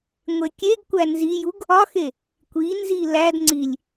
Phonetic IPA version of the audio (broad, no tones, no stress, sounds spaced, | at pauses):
ŋʷ e kʲ e ɡ kʷ æ n z i j u ɡ | ɒ x e | kʷ i n z i l æ d ŋ͡ǀ i lʲ